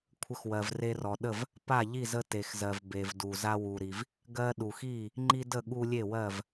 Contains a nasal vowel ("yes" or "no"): no